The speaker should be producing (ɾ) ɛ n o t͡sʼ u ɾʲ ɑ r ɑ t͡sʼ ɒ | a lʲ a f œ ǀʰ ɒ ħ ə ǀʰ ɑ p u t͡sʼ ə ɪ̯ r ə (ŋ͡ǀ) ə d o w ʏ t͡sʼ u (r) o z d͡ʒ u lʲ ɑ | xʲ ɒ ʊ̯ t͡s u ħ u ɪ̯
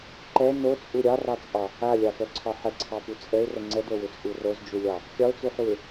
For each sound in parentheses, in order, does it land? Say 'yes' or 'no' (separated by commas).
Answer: no, yes, yes